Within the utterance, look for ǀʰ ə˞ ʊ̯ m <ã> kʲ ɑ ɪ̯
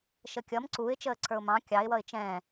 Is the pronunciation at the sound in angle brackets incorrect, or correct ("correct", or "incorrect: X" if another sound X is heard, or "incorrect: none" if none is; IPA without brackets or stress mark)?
incorrect: ɑ̃